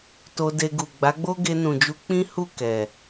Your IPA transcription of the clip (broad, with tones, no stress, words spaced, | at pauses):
to˧de˧ɡu˨ ɡ͡ba˨˦ɡ͡bo˦ ɡe˧nũ˨d͡ʒu˧ k͡pĩ˦hu˦˨ kɛ˨